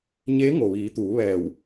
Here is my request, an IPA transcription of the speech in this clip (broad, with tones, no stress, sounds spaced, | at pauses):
ɲ eː˧˥ ŋ o˩ ʋ iː˩˧ t̪ uː˩˧ ʋ ɛː˧˩ w